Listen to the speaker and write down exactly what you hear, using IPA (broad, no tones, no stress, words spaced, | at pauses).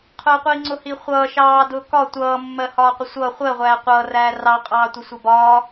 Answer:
qʰʊːqʷiːŋ͡ǀʊ hiχʷʌː ʃɑː dʊːkɒ tʷʌː mːɜhɒːqʷɪsʷʌː χʷɜ ʁʷæːqʷʌː ræːrɑ qʼɑːtʷəsʷɪbɒː